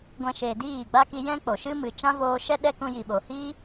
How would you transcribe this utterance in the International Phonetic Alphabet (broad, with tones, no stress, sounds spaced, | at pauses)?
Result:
ɡʷ ɛ̃˧ ʃ eː˨ d iː˦˨ ɡ͡b a˦ k i˧ j ɛ̃˦ k͡p o˨ ʃ ɨ˦ m ɨ˨ t͡ʃ ã˦ v oː˧ ʃ ɛ˦ ɗ ɛ˦ k ũ˧ j i˨ ɓ o˨ h iː˦